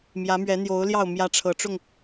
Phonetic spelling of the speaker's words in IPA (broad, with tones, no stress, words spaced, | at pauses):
mjä˨˦mɥɛ˨˦n̪jo˨˦ʊ̯ljɑ˥˨ʊ̯ mjä˦ʈ͡ʂʰɤ˨˦ʈ͡ʂʊ˥˨ŋ